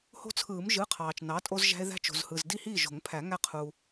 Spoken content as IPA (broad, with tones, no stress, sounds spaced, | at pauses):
h o̤˦ t͡sʰ ɯː˨˩˦ m ʒ ɯ˩˧˩ qʰ ɑː˩ t͡ʃ n ɑ˩˥ tʼ o˦ z ʒ æ̤˦ e̯ ð æ̤˦ t͡ʃ o̤˩ z h ɯ˩ z d i˥˩ h iː˥˩ ʒ o̤˨˩˦ ŋ pʰ æ˨˩˦ ŋ æ˦ qʰ u˩